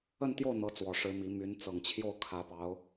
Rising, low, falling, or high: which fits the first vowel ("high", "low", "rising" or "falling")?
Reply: falling